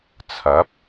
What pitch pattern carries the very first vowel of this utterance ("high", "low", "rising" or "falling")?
rising